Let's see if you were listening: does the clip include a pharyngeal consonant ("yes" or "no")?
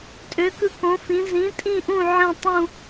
yes